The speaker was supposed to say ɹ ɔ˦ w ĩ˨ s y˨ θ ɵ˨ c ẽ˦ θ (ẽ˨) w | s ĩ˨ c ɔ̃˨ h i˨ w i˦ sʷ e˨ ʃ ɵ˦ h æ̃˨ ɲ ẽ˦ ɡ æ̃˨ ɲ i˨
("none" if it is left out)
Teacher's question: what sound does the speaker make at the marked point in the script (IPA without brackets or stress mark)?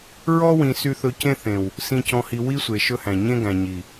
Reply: ẽ˨